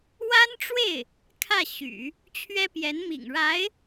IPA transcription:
wa˥nʈ͡ʂwe˥˩ɪ̯ | kʰä˥˩ ɕy̰˨˩˦ | t͡ɕʰɥɛ˥pjɛ˧˥nmḭ˨˩ŋɻa˧˥ɪ̯

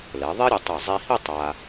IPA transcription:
lɛ˩˧ðˤi˥ɾʲɛ˧tˤe˧˩ zˤi˧hi˥˧ tˤa˧

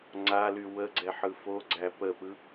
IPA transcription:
ŋ͡ǀaly wəɡ͡ǀɛħɯ foɡ͡ǀæ pəpɯ

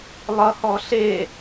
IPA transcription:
lˠʌhɔ ɬe

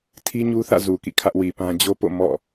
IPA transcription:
tʰi˦ɲu˦θä̰˦˨ zu˨kḭ˦˨kʰä˦ʔ wi˨pã˦ d͡ʑo˦po̰˦˨ mɔ̰˦˨

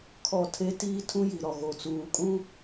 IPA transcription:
kʰɔ˦˨tʰe˦ tiː˦tʰũ˦ ji˨ɾɔ˨ ɣo˨t͡suː˨kʼũ˦

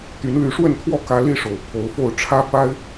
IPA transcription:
t̪y˨˦nly˨˦ʂwə˥˨nt̪ʰwɔ˥˨ kä˦ li˥˨ʂo˨˩ʊ̯ pʰo˨˦ʊ̯fo˥˨ʊ̯ ʈ͡ʂʰä˦ fa˦ɪ̯

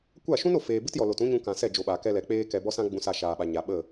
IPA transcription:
kʷa˦˨ʃũ˦no˨feː˨ bɨ˦tjɔ˨lo˨tũ˦ ɲũ˧kã˨sɛ˦˨ d͡ʒo˧ɓaː˨kɛ˦lɛ˨ k͡peː˦kɛ˧ bɔ˦sã˦ɡ͡bũ˧sa˧ ʃaː˨ɓa˨ɲa˨ ɓə˦˨

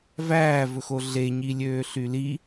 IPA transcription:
væːvɵxo ɮeɲi lʲøːɬyli

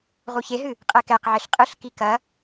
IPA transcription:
ʁuçeɦɨ | qʼɛkɛqʕeɬ qʼɨɬki kɐ

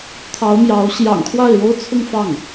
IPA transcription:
t̪ʰɑ˧˥ʊ̯mjɑ˧˥ʊ̯ ɕjɑ̰˨˩ŋkʰwa˥˩ɪ̯ɻo˥ʊ̯t͡sʰʊ˥˧ŋ fɑ˥˩ŋ

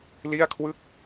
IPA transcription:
li˥˩a̯kʰwɯ˥˩k̚

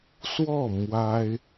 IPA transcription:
swɔ˥˩ mwa˥ɪ̯

